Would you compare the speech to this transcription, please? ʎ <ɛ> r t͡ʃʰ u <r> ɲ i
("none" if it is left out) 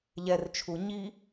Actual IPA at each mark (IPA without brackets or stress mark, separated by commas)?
ɛ, none